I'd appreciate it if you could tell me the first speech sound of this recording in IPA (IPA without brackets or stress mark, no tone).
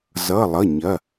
z